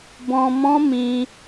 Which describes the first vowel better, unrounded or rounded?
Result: rounded